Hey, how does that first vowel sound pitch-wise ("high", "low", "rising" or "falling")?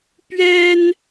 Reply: high